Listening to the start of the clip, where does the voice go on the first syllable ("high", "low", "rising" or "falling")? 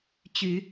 low